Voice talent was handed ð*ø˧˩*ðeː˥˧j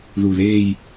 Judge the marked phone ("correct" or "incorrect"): incorrect